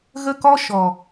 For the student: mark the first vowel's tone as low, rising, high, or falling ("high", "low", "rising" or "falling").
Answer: high